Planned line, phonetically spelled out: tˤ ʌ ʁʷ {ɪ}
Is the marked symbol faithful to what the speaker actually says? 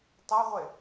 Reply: yes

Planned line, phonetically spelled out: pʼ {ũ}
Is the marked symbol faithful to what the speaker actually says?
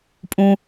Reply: yes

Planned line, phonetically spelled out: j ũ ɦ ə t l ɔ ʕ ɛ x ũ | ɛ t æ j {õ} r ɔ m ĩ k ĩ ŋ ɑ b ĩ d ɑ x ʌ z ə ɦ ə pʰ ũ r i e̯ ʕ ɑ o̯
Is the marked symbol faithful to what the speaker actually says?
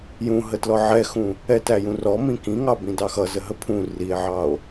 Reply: no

